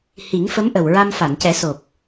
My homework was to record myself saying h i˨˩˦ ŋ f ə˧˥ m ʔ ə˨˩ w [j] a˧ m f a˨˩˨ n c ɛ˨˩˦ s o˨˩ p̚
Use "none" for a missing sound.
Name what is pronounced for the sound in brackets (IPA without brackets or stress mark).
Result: ɹ